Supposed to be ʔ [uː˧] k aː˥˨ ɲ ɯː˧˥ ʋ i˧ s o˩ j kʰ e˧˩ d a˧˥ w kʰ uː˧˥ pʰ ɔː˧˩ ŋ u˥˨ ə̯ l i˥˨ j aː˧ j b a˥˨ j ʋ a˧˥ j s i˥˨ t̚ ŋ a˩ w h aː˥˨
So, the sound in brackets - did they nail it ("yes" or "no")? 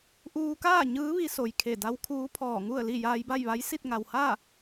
yes